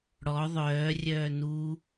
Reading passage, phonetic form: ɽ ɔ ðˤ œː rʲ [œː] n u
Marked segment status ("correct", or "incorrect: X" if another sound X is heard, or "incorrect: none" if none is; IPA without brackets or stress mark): correct